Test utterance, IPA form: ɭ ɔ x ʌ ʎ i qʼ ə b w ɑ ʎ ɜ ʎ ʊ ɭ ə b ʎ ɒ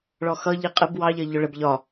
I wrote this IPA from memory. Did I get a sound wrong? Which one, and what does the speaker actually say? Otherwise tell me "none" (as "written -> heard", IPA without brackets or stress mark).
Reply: none